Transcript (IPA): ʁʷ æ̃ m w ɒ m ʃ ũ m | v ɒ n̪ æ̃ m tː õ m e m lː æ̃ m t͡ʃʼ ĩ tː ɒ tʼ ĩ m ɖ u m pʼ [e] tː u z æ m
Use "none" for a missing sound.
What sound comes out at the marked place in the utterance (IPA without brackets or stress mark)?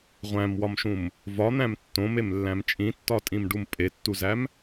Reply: e